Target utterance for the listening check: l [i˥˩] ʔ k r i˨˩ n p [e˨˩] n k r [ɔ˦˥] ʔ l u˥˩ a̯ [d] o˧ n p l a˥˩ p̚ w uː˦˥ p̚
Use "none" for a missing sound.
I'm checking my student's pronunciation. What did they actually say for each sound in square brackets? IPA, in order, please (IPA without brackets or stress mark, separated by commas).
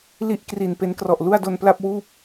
i˥˩, e˧, ɔ˨˩, d